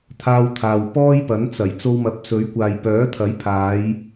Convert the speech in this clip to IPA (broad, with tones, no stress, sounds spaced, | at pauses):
t̪ʰ aː˧ w t̪ʰ aː˨ w p ɔː˥ j p ɐ˨˥ n t͡s ɐ˨˩ j t͡s o˧ w m ɐ˨˥ p̚ s ɵ˨˥ ɥ kʷ aː˨ j p œː˨˥ t̪ʰ ɐ˨˥ j pʰ aː˨˧ j